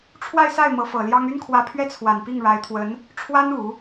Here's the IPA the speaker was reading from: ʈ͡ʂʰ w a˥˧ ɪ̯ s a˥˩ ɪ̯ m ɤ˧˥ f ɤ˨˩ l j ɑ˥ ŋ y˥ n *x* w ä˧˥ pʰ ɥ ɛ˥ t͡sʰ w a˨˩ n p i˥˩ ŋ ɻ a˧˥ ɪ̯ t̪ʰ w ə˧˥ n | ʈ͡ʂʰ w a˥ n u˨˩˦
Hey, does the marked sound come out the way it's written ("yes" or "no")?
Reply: no